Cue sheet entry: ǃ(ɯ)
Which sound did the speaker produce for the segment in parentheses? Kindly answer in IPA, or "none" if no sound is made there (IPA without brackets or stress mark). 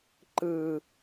ɯ